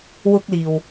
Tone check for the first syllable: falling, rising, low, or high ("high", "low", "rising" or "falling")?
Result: high